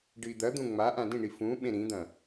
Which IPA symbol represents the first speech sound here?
ɖ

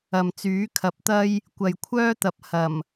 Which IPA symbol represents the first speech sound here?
ɐ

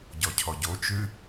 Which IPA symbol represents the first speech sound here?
ɟ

